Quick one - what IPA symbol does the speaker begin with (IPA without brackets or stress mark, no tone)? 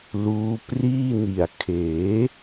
l